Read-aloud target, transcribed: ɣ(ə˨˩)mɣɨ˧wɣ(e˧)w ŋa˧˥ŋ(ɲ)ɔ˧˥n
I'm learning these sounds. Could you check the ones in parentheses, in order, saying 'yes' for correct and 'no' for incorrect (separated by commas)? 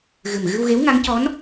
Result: no, no, no